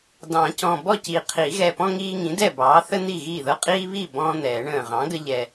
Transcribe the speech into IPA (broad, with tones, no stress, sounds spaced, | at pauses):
d ɑ̃˨˩˦ c ɔ̃˨˩ b ɔ˥˩ c i˨˩ qʰ i˨˩˦ ɣ ɛ˨˩ p ɔ̃˦ ŋ iː˦ ŋ ĩ˩˥ d ɛ˥˩ b ɑː˩˥ θ ə˦ n̪ i˥˩ ɣ iː˥˩ ð ɤ˦ qʼ iː˦ β iː˥˩ b ɔ̃ː˦ n̪ ɛː˨˩˦ ɳ ə̃ː˨˩ ʁ ɑ̃˩˥ ɡ ə˦ ʎ ɛ˨˩